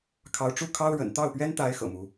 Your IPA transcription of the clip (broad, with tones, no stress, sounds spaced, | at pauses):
kʰ ɑ˧˥ ʊ̯ ʈ͡ʂ u˥˩ kʰ ɑ˥ ʊ̯ ɻ ə̰˨˩ n t̪ ɑ˥˩ ʊ̯ p ɥ ɛ˥ n t̪ a˧˥ ɪ̯ x ɤ̰˨˩ m u˧˥